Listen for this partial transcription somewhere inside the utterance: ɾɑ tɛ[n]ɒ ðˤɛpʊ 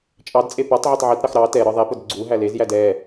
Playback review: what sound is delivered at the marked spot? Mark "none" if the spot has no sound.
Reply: ɾ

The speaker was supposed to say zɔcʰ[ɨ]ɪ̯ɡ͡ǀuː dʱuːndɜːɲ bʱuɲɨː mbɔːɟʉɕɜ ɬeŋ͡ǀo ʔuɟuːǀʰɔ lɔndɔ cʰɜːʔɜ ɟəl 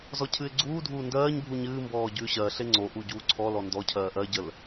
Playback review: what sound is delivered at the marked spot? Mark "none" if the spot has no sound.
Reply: ɨ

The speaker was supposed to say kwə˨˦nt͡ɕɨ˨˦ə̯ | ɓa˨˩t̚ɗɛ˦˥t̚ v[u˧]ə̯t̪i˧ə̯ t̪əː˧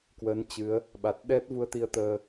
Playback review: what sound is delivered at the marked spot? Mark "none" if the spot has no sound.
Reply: u˧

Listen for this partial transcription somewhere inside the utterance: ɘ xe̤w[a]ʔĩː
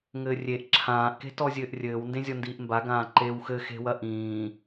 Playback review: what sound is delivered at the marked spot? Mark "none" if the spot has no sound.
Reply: ɐ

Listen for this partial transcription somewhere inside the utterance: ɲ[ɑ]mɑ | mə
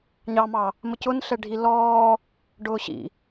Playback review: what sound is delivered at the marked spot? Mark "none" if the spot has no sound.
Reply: ɑ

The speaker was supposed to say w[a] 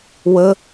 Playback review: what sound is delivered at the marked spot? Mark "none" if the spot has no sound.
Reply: ə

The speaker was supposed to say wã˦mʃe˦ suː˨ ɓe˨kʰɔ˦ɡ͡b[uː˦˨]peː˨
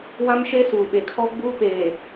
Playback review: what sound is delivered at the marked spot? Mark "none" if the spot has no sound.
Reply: uː˦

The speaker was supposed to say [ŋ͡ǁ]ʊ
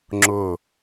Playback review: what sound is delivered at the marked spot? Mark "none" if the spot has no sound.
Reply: ŋ͡ǁ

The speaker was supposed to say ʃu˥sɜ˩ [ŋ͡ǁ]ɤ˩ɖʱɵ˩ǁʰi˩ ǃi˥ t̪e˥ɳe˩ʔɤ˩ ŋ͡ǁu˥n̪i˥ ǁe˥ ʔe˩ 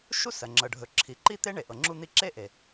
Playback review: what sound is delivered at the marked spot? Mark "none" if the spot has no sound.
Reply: ŋ͡ǁ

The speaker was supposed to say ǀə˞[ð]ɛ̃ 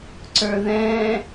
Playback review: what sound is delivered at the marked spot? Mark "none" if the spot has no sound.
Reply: ð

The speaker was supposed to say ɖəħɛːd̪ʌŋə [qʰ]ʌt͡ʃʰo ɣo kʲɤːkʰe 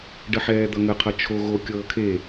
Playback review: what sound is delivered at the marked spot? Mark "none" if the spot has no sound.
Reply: qʰ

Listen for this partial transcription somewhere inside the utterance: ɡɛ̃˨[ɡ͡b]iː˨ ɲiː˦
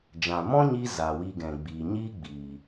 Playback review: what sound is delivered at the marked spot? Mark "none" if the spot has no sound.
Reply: ɡ͡b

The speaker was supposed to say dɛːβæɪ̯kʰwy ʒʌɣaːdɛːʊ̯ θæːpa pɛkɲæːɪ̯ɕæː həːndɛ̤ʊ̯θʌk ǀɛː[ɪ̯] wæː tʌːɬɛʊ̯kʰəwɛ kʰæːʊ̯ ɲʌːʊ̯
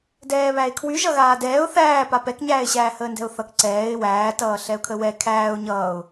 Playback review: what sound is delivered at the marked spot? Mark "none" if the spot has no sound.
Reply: ɪ̯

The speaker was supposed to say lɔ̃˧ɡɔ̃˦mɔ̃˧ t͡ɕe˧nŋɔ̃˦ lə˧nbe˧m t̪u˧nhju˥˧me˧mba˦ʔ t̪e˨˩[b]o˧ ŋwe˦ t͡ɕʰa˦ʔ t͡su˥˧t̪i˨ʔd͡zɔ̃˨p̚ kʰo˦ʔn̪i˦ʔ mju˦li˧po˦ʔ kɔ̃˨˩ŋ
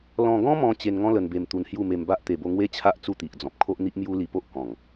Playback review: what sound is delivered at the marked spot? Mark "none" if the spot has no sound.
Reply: b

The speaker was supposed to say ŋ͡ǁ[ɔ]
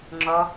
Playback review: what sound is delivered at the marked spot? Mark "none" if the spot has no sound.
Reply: ɔ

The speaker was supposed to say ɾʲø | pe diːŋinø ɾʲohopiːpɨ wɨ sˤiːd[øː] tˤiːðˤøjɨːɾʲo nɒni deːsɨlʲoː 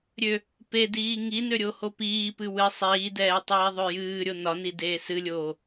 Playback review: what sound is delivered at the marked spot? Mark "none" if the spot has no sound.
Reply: ɛː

